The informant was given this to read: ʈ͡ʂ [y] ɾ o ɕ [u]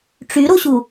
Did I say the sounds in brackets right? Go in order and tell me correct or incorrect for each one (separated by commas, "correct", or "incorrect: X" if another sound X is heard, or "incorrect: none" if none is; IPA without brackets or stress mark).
correct, correct